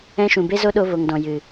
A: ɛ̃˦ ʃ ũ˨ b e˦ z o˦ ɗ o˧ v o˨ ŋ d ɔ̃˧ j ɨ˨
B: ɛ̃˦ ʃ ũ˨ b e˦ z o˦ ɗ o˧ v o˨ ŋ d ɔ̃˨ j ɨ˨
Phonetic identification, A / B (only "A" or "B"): B